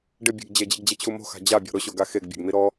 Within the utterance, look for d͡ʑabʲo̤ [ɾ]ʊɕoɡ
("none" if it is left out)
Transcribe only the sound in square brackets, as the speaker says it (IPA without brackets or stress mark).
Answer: ɾ